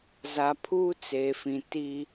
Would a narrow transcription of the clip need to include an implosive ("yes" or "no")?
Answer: no